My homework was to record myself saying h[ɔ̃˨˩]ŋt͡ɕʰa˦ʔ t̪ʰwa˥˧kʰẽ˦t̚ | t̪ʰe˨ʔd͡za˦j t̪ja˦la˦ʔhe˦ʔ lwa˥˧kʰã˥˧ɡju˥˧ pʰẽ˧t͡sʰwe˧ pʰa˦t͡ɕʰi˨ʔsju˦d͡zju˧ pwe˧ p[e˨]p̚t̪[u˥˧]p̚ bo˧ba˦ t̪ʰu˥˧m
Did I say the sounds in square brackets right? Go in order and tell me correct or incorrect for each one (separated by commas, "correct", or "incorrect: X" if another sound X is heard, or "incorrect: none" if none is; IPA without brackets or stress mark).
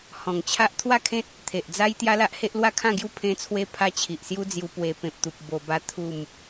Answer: correct, incorrect: ẽ˨, incorrect: u˨